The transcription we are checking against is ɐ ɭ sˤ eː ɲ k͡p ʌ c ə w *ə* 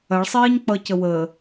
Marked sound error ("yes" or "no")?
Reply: yes